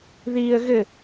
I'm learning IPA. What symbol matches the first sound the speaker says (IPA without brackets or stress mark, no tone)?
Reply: ð